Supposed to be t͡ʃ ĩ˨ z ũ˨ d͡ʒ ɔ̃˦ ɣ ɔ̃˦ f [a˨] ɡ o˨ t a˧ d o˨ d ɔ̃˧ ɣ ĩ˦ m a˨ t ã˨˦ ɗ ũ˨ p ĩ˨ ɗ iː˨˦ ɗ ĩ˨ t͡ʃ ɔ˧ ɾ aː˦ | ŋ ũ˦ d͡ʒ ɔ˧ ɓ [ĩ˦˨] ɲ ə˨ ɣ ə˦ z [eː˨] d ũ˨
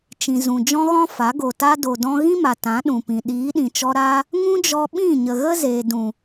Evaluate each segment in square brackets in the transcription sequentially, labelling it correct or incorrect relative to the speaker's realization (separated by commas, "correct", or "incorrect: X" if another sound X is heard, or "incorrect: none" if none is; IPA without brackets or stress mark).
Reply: incorrect: a˨˦, correct, correct